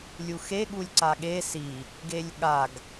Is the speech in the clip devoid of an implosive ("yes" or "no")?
no